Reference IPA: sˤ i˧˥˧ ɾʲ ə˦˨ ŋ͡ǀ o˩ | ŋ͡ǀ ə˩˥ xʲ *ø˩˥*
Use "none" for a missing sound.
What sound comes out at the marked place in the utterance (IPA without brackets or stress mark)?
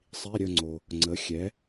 ɛ˩˥